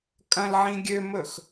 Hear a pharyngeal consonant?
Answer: yes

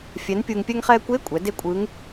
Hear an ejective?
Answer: yes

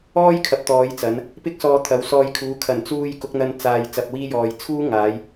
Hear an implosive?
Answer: no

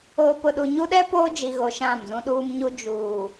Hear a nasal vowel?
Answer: yes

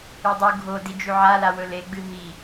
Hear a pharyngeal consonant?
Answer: yes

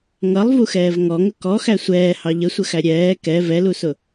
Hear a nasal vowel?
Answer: no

